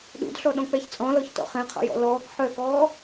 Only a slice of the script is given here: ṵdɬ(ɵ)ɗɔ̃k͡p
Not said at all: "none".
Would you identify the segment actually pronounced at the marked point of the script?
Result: ɔ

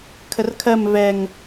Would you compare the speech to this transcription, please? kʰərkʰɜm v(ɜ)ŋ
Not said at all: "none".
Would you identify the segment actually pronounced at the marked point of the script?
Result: ɛ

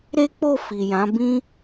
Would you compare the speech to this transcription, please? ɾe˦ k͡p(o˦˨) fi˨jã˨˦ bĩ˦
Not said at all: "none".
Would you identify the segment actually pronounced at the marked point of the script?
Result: o˦˨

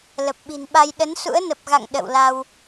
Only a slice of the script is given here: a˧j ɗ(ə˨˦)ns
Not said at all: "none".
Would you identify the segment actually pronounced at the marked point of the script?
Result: ə˨˦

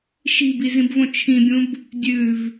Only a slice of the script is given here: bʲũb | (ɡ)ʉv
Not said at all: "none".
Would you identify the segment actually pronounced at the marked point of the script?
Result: dʲ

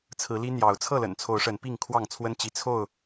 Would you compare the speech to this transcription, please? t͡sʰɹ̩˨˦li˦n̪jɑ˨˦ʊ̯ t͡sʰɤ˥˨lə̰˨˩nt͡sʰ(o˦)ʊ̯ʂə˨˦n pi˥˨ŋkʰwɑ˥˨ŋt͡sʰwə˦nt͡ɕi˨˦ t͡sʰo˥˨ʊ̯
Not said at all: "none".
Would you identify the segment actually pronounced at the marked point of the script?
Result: o˨˦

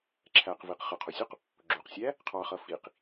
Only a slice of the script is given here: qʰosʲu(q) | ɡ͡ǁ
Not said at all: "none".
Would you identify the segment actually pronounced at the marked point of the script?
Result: q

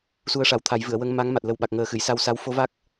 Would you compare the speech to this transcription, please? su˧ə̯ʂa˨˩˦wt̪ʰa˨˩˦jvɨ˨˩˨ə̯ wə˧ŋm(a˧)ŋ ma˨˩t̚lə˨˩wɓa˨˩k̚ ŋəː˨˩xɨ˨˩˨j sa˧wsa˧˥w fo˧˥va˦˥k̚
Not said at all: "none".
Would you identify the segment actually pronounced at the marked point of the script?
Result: a˧˥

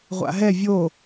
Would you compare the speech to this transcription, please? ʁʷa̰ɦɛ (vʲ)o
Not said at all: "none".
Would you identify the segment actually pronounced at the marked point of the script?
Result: vʲ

